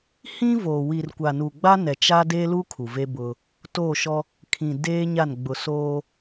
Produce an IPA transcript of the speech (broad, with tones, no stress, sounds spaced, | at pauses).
h ĩ˦ v o˨ w i˨ r kʷ a˨ n u˨ ɡ͡b a˦ n ɛ˨ t͡ʃ a˦ d e˦ l u˦ kʰ u˨ v e˦ b ʊ˦ | t oː˦˨ ʃ ɔ˦ | kʰ ĩ˨ d eː˦ ɲ a˦˨ n ɡ͡b ʊ˨ s oː˦